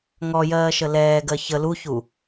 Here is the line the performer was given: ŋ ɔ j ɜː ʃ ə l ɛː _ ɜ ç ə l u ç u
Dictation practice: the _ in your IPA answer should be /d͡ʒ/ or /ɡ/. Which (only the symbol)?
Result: ɡ